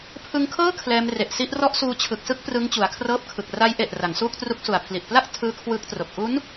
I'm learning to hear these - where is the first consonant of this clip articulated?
lips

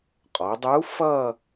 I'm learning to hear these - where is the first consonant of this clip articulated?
uvula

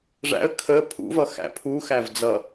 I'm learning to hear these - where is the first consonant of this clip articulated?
retroflex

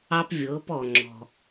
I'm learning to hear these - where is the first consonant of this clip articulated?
lips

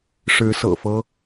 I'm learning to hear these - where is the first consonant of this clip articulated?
retroflex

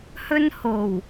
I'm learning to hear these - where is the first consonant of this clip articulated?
throat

